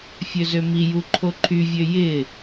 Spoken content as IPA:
fʲ ø z ø m i j u ǃʰ o ǃʰ y vʲ ø j ɪ

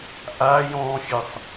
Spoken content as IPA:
ʔ a j ɔ̃ xʲ ɘ sˤ

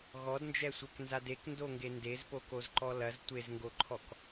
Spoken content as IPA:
ɣ ɔ d n d͡ʒ ɛ sʷ ɛ k n z a d e k n d o ŋ ɡ e n d e z p o k o z ǃ ɔ l ɐ z tʷ e z ŋ ɡ o ǃʰ ɔ k

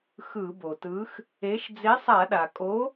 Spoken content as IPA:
x ɯ˧˩˧ b o˩ t ɯ˨˥ x | e˨˥ ʃ d͡z e˨˥ sˤ a˧˩˧ ɗ a˩ kʼ o˨˥

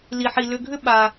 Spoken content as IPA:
l i˩ ħ i˩ l ʏ˨ ɡʱ ʏ˦ ɓ a˩

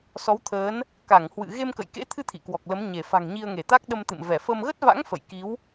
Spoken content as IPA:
s ɔ˨˦ w t̪ʰ əː˨˦ n | k a˧˩ ŋ h w ɨ̰˧˨ ɣ e˧ m k ə̰˧˨ j k ḛ˧˥ t̪ʰ ɨ˧ t̪ʰ ḭ˧˨ k w ɔ˨˩ k̚ l ə˨˦ m ɲ e˧˩ f a̤˨˩ ŋ ɲ i˧ ə̯ ŋ e˧˩ t̪ a˦˥ k̚ ɗ ə˧ m t̪ ɨ̰˧˨ m v ɛ˧˩ f ə˧ m ɣ ə˦˥ t̚ v a̰˧˥ ŋ f ə̰˧˨ j k i˨˦ w

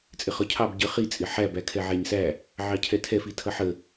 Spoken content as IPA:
t͡sʼ ɪ χ ɒ cʰ ɑ b ɟ ə χ i t͡sʼ ɪ ħ æ b æ kʰ ɛ ʕ æ ɲ s æ | ʕ ɑ cʰ ɛ tʰ ɛ f i tʰ ʌ ħ ə

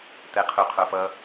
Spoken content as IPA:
t̪ ɛ qʰ u qʰ o f ʌ

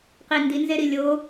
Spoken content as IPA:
q i n d i n z e ɾ i lʲ o

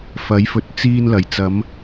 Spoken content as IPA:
f ɐ˨˥ j f ɵ˨ t̚ t͡s iː˧ n l ɐ˨˩ j t͡s ɐ˨˧ m

